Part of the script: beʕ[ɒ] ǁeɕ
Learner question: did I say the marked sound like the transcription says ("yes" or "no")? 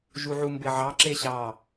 no